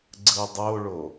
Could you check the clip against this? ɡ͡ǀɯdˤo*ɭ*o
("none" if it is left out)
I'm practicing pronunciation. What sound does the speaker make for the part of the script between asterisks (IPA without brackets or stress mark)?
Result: ɭ